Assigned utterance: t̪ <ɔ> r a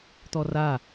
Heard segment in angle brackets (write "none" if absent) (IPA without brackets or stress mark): ɔ